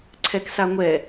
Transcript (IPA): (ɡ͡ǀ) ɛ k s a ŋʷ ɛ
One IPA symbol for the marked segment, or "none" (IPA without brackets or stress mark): ǀʰ